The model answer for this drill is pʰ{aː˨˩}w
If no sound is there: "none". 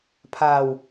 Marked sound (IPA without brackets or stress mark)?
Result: aː˨˩